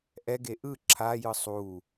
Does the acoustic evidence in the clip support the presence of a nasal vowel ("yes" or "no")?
no